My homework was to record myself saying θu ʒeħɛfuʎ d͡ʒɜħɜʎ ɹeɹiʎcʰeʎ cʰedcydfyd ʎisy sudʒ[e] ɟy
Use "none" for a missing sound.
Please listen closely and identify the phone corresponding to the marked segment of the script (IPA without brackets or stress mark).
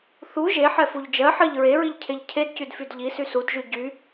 y